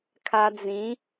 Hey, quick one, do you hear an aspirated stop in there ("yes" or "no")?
yes